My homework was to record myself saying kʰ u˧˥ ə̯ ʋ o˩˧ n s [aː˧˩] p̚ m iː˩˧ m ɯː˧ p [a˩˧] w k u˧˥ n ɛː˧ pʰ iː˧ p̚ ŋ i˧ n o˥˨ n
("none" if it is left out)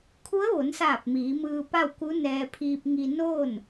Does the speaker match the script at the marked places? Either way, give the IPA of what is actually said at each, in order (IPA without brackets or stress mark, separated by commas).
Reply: aː˧˩, a˥˨